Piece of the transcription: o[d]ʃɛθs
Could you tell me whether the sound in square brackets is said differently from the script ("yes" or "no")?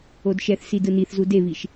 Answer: no